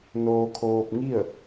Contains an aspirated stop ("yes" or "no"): yes